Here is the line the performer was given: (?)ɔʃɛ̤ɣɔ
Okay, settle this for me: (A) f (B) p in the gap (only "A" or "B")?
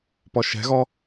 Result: B